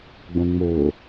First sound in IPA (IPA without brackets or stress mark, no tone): ɡ͡b